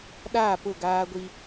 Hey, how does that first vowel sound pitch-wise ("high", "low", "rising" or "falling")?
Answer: falling